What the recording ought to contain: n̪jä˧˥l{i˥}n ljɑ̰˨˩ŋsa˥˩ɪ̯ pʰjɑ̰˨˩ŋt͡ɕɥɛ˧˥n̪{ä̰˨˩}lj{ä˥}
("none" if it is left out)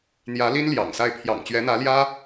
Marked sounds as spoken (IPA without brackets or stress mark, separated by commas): i˥, ä˧˥, ä˥